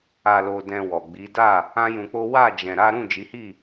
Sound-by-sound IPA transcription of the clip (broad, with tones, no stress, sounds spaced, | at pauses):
a˧ l o˧ d ɛ̃˧ w ɔ˨ ɡ͡b i˨˦ d a˦˨ | ã˦ j ũ˧ k͡p o˦ w a˦˨ d͡ʒ ɛ̃˧ ɾ a˦ ɾ ũ˦˨ d͡ʒ i˨˦ h i˦˨